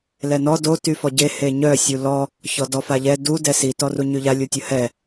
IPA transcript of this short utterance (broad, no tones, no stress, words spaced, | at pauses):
lɛnɔ do tyfɔɟe heɲœ sʲulɔ | çɔdɔfaʎɛ du dɛsi tɔruɲyʎa lʲutʲəhɛ